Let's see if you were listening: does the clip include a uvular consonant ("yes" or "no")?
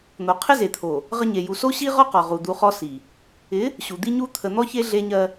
yes